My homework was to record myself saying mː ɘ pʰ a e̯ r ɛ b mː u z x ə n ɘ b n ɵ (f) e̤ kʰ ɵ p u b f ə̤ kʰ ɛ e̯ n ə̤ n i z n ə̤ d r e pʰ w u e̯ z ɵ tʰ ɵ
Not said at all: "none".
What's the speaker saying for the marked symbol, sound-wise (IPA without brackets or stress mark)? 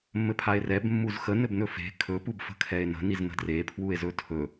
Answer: f